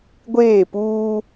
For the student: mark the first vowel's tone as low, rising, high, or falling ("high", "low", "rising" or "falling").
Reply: falling